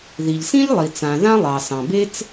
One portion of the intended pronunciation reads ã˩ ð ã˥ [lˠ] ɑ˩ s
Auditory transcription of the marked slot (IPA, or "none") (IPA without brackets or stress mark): lˠ